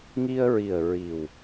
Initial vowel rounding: unrounded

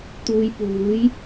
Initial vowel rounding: rounded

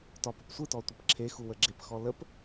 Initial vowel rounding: rounded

